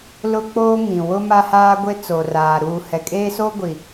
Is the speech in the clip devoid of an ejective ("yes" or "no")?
no